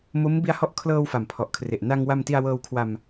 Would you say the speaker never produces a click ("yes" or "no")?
yes